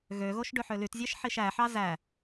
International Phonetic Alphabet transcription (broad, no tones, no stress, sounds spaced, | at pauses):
ɣ ø ɣ o ʃ ɖ ø ħ ø l y t zʲ æ ʃ ħ i ʃ æ ħ ɑ z æ